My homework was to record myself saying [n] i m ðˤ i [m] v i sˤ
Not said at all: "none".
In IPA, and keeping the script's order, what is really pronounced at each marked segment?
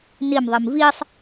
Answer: n, m

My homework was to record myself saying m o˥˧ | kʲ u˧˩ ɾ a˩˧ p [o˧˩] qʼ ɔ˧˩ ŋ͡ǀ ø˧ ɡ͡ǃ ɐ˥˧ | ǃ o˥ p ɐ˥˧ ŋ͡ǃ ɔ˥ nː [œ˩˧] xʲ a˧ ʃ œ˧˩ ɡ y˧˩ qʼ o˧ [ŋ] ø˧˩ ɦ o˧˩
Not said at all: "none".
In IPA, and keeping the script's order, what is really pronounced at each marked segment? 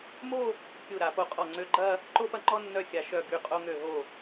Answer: o˧˩, œ˥, ŋ

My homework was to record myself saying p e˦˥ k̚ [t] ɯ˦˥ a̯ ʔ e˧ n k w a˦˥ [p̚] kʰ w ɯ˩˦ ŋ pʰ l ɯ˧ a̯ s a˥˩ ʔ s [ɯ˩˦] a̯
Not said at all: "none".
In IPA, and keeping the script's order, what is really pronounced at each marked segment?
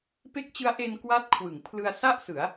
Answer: t͡ɕ, t̚, ɯ˩˦

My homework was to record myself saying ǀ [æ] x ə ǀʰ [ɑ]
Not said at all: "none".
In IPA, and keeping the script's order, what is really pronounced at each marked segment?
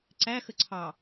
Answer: æ, ɑ

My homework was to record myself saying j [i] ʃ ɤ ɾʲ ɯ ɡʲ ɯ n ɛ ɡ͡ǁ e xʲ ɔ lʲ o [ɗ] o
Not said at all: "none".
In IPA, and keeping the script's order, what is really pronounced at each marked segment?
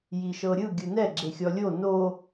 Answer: i, n

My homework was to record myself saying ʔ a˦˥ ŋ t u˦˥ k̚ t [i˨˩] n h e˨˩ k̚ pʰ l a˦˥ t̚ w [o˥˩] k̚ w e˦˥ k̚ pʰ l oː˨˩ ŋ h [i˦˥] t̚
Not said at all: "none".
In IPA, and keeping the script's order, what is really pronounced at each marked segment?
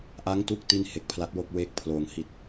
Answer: i˥˩, o˥˩, i˨˩

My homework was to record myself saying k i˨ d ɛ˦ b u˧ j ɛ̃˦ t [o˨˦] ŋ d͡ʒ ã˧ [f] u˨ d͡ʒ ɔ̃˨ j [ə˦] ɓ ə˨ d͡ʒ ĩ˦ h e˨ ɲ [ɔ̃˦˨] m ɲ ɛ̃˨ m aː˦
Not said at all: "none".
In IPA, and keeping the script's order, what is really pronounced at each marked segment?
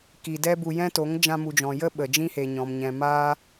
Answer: o˨˦, m, ə˦, ɔ̃˨

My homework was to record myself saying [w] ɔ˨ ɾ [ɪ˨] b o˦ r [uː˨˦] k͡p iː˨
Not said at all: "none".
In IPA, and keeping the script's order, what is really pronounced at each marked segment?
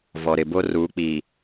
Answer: v, ɪ˨, uː˨˦

